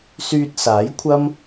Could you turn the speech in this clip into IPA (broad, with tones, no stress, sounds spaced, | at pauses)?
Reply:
s yː˧ t̚ s aː˨˥ j kʷʰ ɐ˥ m